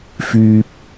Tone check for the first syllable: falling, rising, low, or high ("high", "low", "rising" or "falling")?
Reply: low